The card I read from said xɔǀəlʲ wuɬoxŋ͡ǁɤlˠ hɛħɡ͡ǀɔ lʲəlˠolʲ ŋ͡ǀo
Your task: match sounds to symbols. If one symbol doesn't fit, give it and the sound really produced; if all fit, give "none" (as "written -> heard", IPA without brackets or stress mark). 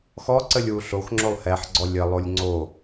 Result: ɤ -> o